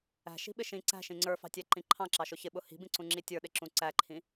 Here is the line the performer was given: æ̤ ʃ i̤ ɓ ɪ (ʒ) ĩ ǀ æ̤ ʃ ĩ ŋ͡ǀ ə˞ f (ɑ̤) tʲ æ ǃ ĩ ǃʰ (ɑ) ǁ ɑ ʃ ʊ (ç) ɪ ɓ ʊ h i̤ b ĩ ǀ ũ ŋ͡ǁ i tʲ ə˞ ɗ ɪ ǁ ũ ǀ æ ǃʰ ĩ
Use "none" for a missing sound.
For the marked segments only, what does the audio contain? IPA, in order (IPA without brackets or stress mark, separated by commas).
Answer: ʃ, ɑ̤, ɑ̃, ç